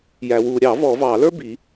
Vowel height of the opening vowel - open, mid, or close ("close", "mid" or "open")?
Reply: open